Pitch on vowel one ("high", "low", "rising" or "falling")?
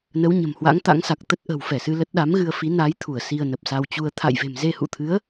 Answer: rising